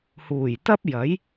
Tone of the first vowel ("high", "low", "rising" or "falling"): low